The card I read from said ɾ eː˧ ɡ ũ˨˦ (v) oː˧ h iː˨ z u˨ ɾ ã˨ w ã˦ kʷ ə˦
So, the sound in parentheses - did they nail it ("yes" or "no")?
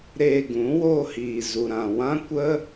no